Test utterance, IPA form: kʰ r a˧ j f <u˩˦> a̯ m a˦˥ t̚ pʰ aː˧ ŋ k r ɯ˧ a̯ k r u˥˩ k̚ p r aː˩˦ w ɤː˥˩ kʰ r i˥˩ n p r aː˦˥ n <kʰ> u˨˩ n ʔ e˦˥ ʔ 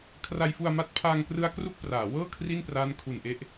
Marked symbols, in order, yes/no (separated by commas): no, yes